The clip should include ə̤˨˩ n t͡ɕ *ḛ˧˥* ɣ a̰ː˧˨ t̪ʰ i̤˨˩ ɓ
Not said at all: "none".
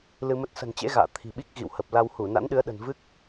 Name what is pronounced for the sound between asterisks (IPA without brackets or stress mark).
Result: ḛ˧˥